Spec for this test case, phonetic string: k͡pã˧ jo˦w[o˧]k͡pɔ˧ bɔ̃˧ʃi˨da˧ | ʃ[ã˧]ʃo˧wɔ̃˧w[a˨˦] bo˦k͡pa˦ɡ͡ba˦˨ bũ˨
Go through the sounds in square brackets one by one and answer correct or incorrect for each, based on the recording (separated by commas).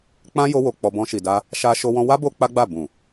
correct, incorrect, incorrect